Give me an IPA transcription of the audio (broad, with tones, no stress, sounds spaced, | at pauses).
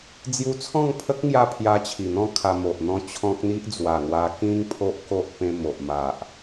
d͡z j u˧ t͡sʰ ɔ̃˥˧ ŋ pʰ ə˦ k̚ ŋ j a˦ pʰ j a˧ t͡ɕʰ i˨˩ n̪ ɔ̃˥˧ kʰ a˧ m o˨ ʔ n̪ ɔ̃˥˧ t͡ɕʰ ɔ̃˦ k̚ n̪ i˦ ʔ d͡z w a˨˩ ŋ w a˧ k ĩ˦ ŋ pʰ o˦ ʔ k o˦ ʔ p ẽ˧ m o˨ ʔ m a˨ ʔ